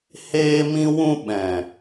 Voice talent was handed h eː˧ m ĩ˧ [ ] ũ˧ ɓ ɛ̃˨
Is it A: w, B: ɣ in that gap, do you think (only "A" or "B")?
A